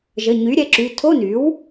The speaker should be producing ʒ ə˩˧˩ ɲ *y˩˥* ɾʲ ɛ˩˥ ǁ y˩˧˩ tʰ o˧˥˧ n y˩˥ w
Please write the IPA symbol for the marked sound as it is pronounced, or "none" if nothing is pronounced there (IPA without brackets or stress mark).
y˩˥